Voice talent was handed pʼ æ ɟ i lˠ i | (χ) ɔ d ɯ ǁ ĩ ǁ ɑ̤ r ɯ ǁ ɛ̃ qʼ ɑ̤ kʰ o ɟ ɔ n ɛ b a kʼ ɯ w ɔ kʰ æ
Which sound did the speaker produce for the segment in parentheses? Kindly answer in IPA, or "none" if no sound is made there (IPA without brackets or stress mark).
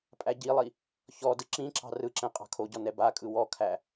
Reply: ç